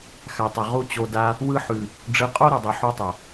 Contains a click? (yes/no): no